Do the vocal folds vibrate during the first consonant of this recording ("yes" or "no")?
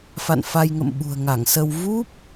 no